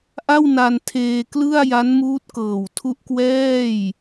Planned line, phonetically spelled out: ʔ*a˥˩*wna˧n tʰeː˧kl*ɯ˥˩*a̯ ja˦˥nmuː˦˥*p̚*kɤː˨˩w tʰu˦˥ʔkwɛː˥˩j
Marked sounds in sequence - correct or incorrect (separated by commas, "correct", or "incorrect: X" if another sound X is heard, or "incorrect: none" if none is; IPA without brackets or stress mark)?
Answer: correct, correct, incorrect: t̚